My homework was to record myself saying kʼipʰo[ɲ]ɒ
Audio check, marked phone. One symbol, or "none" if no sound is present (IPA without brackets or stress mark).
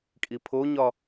ɲ